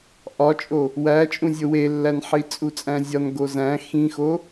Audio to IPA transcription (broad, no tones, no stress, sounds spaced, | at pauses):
ʔ ɒ t͡ʃʼ o | w æ t͡ʃʼ ũ zʲ o w e lː æ n ħ i t͡sʼ u t͡sʼ æ̃ zʲ ɒ n ɡ o z æ̃ x ĩ x o